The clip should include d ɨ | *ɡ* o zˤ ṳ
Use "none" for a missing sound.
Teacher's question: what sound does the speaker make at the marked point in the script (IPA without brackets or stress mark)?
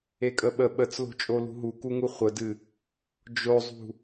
d͡ʒ